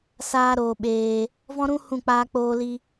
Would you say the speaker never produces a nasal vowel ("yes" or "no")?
no